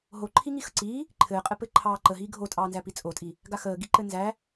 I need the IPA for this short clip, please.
ɦ o ǃʰ i ŋ i x ə ǀ iː | ǃʰ ɘː qʼ ɘ p ɘː ǃʰ ɑː ǃ ə ɦ iː ɡʱ o tʼ ɑː n z æ p i t͡sʼ o tʼ i | ɡ a x əː ɡ i ǃ ɘ n z æ

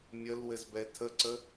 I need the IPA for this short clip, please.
mʲ ə l w ɘ z b ɛ tʰ ə ǀ ə

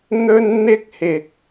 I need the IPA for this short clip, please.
n̪ ɵ˥ n n̪ ɪ˥ k̚ h ɪ˧ k̚

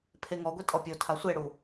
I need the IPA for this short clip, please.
pʰ e ŋ ɔ ɡʷ i tʼ ɔ pʲ o tʰ a sʷ e ɽ u

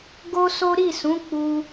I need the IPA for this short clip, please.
ɡ o˦ s o˦ ɾ i˦˨ s ũ˨˦ k͡p u˧

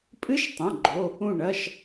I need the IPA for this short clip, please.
pʼ ɨ˧˥˧ ʃ tˤ ɐ̃˩˧˩ ɡ͡ǃ o˩˧˩ | ũ˧˩ ɳ ɐ˩˧˩ ʃ

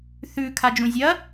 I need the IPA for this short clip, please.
θ ʉ kʰ a d͡ʒ ũ zʲ ɐ

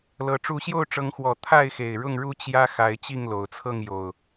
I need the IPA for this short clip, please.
l ɤ˨˦ ʈ͡ʂ u˨˦ ɕ j o˥˨ ʊ̯ ʈ͡ʂ ɤ˨˦ ŋ x w ɔ˨˩ t̪ʰ a˥˨ ɪ̯ x e˨˩ ɪ̯ ɻ ʊ˥˨ ŋ ɻ u˥˨ t͡ɕ j ä˦ x a˨˦ ɪ̯ t͡ɕ i˥˨ ŋ l o˨˩ ʊ̯ t͡sʰ ɤ˥˨ ŋ j o˨˩ ʊ̯

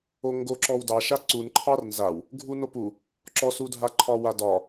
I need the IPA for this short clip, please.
o ŋ ɡ o ǁ ɔ w d ɑ ʃ a ǀ u n ǃʰ ɑ r n z a w | ɡʱ u n o p u | ǁ ɔ s u dʱ a ǃʰ ɒ w a d ɒ

